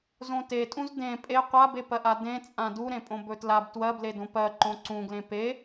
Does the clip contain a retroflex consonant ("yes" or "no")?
no